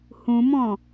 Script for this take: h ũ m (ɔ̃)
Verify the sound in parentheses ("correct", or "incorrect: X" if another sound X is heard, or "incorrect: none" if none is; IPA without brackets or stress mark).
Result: correct